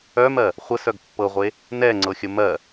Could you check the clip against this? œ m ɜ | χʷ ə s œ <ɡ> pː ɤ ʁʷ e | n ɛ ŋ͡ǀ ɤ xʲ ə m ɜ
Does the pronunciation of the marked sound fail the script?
no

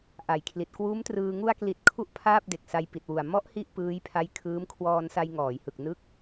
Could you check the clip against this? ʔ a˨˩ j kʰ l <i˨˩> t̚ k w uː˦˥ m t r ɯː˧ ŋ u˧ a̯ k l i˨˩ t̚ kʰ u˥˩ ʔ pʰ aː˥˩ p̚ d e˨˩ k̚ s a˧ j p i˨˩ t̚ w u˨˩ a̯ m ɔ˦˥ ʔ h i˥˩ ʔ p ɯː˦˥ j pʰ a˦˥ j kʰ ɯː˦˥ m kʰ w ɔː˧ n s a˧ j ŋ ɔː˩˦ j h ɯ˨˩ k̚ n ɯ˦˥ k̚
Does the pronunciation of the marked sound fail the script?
no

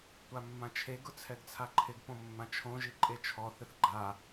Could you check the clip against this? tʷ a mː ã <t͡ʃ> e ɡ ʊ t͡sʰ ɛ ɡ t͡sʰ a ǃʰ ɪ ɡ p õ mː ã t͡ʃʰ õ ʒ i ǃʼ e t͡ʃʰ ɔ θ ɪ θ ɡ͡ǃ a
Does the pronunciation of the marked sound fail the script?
yes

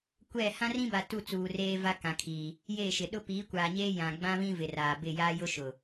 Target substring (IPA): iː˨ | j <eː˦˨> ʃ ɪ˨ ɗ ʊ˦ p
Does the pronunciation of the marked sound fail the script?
no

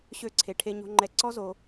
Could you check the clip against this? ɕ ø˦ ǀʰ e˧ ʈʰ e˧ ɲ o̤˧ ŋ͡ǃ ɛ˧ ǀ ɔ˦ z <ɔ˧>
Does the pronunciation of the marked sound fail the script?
yes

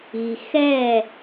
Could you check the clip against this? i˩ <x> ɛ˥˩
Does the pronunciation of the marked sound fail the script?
no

